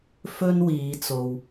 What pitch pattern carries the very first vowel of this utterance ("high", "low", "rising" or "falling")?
high